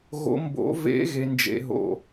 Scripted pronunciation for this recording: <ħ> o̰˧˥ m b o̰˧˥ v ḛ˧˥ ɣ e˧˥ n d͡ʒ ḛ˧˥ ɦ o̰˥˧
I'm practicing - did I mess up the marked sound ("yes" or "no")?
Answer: yes